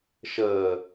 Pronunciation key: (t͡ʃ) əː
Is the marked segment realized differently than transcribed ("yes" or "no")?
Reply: yes